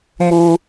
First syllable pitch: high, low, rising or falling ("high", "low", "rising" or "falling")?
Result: high